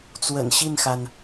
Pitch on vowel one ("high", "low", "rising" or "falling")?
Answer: low